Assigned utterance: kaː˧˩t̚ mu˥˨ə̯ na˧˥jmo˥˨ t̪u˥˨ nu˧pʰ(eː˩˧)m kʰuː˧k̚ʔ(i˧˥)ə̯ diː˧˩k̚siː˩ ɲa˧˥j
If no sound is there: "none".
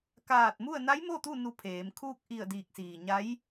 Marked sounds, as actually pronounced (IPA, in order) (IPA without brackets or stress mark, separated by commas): eː˩˧, i˧˩